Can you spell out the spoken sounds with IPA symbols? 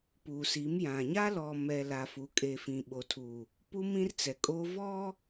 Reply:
puː˨si˨˦mjã˨ ɲa˦lɔ˨mɛ˨ la˨fu˨ kʼe˨fĩ˨ɓo˨tʰuː˨ | pu˦mĩ˦rt͡sɛ˨kʼoː˦ vɔ˦

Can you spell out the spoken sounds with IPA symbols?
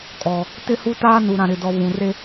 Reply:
kʼɔ˨ | tɪ˦hu˦taː˦nu˨ ɾã˨ɾɪ˨dɔ˨ βũ˨re˦

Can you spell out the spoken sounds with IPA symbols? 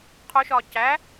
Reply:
qʰoʃɒː cæ

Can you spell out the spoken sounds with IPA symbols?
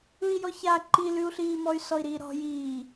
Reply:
ɯi̯jɔça ǃilʉu̯ɬiː mɔy̯sɔi̯ɾiːɾɔ̤ jiː

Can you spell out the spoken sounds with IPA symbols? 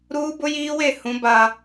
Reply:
ɾuː˦bʊ˦jiː˦we˦˨ hũ˦ba˦

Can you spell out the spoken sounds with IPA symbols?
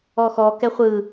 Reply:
ɔxɔ kɛχʷɯ

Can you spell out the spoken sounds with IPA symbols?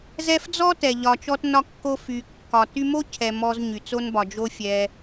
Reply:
zɛ˦fd͡zɔ˥tɛ˩ ʎɒ˨t͡ʃɔ˦tnɒ˦kːo˦ fy˨kːɒ˨ ty˦mo˥cʰɛ˨ mɔ˦z ɲy˩t͡so˥nbɒ˨ d͡ʒo˥ fʲɛ˦

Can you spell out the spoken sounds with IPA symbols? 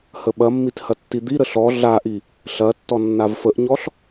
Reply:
həɓɐmːit hɐtːid̪iɾə ɬɔ ɮaʔi | ɬɐtːɔ nːavfəʔɲɔɬ

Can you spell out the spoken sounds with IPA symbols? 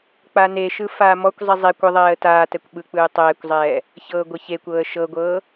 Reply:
k͡paneʃɯ faːmɔkʷzˤi zˤe kʷɯðˤɛːə̯ taːtɛkʷ ɓɯk͡pɯː tˤɛːkʷzˤɛː | çɤːɡʷɤçekʷɤːə̯ ʃɤɡʷɤː

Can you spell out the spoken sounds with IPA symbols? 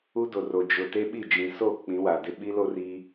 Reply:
u˦do˨ro˨ d͡ʒʊ˨ te˦ɓi˦˨ d͡ʒĩ˨so˦˨ k͡pĩ˨˦wa˨dɪ˦ ɓi˦lo˦ri˦

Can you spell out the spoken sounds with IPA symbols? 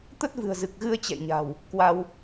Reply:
t̪ə˦˥t̚vɨ̤˨˩ə̯zɨ˨˩k̚ɣɨ˧ə̯ t͡ɕɛ̰˧˨jɲa̤˨˩w | kwa˧w

